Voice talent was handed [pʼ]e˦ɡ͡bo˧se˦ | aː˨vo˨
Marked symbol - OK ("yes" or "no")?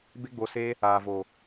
no